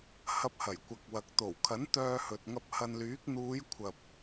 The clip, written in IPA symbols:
hɐ˧p̚ hɐ˨˩jkʷɐ˨k̚wɐ˨k̚ t̪o˨˩wkʰɐ˨˥n t̪œː˧hɵ˨t̚ŋɐ˧p̚ hɐ˧nlyː˨˥k̚ n̪uː˨˧jkʷʰɐ˨p̚

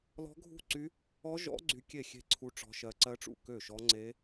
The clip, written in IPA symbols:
lɔ̤˦˥ɡʱṳ˥˩ǀy˦˥ | ɔ˦˥ʒɔ̰˦˥ ɡ͡ǀy˦˥kʲe˥˩xʲe̤˥˩ǀʰu˦˥ ʈ͡ʂɔ̤˦˥ʃɜ˦˥ ǀɜ˦˥ʈ͡ʂṵ˥˩ kø˥˩ʃɔ˦˥ ŋ͡ǀe˦˥

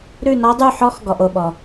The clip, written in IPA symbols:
ɾʉ˥˧nɔ˦˥dˤʉ˥˧ ħɔ˦˥xɡɔ˨ʔo˨ɓɔ˨

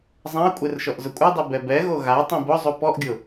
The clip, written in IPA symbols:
zˤãə̯kʷʼer ʃɔʔzʊkʷʼɛdˤi bɛbɛɣo ɣa tˤĩbʊzˤu pɔʔɡʲʊ

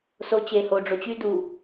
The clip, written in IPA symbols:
so t͡ɕe ho ɖ͡ʐot͡ɕy du

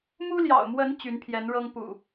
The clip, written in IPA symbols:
mu˦ljɑ̰˨˩ʊ̯mwə˨˦n t͡ɕy˨˦npʰjɛ˨˦nɻɤ˦ŋ pṵ˨˩

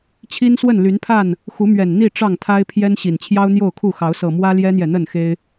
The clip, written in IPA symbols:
t͡ɕʰi˦nswə˥˨nly˨˦npʰa˥˨n | xu˨˦mɥɛ˨˩nn̪i˥˨ ʈ͡ʂɑ˥˨ŋt̪ʰa˦ɪ̯pʰjɛ˦n ɕi˨˩nt͡ɕʰjɑ˦ʊ̯n̪jo˥˨ʊ̯kʰu˥˨ xɑ˨˦ʊ̯sɤ˨˩ mwä˦ljɛ˦n̪jɛ˨n̪ə˥˨n xe˦ɪ̯

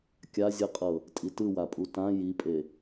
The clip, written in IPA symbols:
kʲazʲɯqʼɤ | tʼitɯwapʼu tã jipʼe

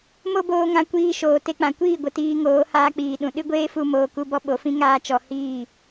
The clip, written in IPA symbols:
mo˦boː˧ŋã˧ kʷiː˧ʃoː˨ te˧k͡pã˨kʷiː˦˨ɡʷə˨ tiː˧ŋoː˨˦ haː˧k͡piː˨ɗũ˨ ɗɨ˦ɡʷeː˦fu˧ moː˧ku˦bɔ˦ ɓo˨˦fĩ˦ ŋaː˦t͡ʃɔ˧ hiː˦˨

